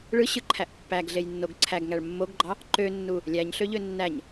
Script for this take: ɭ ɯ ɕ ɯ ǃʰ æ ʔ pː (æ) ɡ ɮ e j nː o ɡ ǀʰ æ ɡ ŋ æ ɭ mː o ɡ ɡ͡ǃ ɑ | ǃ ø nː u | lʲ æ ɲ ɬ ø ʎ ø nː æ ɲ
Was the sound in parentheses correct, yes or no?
yes